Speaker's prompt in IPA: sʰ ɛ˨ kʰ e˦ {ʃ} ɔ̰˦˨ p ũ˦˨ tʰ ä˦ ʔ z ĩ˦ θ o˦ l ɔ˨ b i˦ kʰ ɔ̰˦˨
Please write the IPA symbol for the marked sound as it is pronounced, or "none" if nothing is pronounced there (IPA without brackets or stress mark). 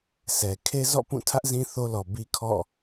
z